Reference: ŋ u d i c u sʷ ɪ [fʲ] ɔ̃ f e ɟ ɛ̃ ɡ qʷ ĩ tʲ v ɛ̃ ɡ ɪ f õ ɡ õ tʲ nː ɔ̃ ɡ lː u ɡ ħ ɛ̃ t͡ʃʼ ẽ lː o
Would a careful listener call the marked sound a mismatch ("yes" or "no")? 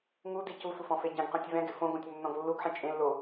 yes